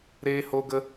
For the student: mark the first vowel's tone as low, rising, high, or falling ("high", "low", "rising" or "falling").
high